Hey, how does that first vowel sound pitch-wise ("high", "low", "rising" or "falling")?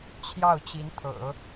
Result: falling